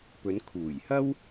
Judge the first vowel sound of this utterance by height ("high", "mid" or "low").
mid